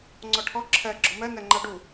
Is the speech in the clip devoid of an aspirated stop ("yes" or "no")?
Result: no